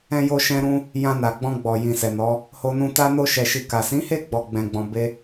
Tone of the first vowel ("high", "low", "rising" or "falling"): high